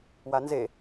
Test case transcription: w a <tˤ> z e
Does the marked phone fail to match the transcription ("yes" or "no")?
yes